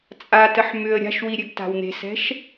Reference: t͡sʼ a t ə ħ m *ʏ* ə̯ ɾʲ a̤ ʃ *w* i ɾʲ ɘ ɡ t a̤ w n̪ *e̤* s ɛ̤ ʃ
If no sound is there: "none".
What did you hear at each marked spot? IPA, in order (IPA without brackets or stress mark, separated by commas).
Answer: ʏ, w, e̤